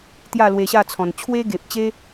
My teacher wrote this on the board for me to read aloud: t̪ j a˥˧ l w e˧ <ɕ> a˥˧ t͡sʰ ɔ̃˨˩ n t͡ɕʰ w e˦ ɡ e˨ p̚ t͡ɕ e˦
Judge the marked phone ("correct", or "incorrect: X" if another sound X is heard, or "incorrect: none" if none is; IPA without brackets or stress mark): correct